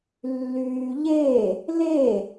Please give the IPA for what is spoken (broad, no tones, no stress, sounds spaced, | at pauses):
lː yː ʎ e | l e